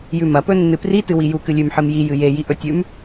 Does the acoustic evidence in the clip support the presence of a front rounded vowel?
no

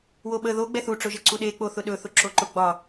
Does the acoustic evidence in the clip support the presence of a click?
yes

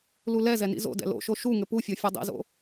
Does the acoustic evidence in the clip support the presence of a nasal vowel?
no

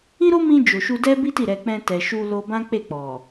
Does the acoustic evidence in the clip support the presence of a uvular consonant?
no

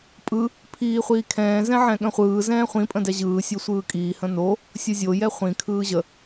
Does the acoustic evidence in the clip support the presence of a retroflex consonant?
no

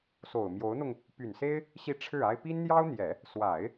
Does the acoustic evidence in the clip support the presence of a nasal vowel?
no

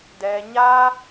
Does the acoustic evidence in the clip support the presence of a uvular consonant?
no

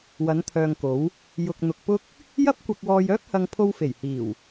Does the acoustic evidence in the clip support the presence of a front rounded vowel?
yes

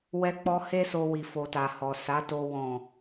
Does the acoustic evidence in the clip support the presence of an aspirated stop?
no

